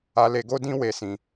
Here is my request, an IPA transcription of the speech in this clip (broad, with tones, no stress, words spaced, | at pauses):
a˧le˧ɡo˦ dĩ˦we˧sĩ˧